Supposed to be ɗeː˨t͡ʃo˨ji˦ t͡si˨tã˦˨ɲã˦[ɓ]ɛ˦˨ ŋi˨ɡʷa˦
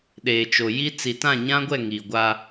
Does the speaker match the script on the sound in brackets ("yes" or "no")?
no